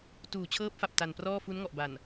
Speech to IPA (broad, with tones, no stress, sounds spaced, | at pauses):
t uː˨˩ t͡ɕʰ ɤː˦˥ p̚ f a˨˩ p̚ t a˨˩ n p r ɔː˥˩ f u˦˥ n ŋ ɔ˨˩ ʔ b a˨˩ n